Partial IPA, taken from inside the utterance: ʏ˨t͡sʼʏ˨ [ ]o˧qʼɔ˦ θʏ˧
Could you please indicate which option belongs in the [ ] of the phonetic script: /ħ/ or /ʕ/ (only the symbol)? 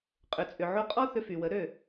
ʕ